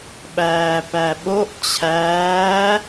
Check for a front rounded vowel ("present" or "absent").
absent